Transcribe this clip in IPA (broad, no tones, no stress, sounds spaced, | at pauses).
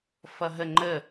f ʌ ɦ ə ŋ͡ǃ ə